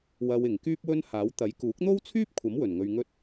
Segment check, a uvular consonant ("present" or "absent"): absent